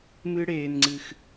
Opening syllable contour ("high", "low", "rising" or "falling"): high